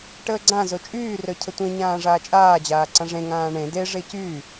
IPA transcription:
ʈəːɡ͡ǀã zot͡ʃʼyː rœcʰətʷẽ ɲãːʐaːt͡ʃʼaː d͡ʑaːǀãʐẽ ŋãːɳẽ de ʐecyː

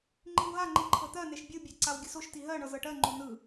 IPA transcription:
ŋ͡ǃiwɦaŋ͡ǃi ǃʰɤt̪ɜneʃ bʲɯbʲe ǀawɡʲəsoʃti ɦɜɳɤz ɤʈɜŋ͡ǃo nɯ

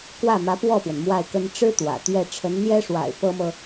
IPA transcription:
kwä˥˩mä˧˥pwɔ˥˩pwə˩n mwa˥˩ɪ̯kə˥n ʈ͡ʂɻ̩˥ t̪wä̰˨˩t̪ɥɛ˥˩ ʈ͡ʂʰə˧˥nn̪jɛ˥ʂwa̰˨˩ɪ̯ pɤ˥mɤ˨

